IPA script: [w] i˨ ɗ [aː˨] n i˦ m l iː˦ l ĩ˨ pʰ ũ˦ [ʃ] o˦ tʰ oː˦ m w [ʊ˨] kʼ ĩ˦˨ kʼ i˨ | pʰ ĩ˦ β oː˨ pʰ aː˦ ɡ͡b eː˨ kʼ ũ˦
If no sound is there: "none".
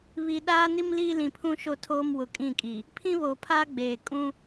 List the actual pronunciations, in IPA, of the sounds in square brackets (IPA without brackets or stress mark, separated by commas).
β, aː˦, ʃ, ʊ˨